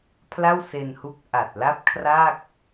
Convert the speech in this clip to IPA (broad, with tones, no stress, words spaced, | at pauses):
pʰla˥˩wse˧nhu˦˥k̚ ʔa˨˩t̚la˥˩p̚ kʰra˥˩k̚